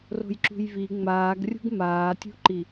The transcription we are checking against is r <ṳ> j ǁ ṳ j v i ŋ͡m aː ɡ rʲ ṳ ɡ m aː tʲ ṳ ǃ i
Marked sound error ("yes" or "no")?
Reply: yes